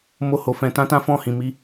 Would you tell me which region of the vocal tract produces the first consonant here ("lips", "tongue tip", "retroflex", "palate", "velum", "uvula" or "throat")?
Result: lips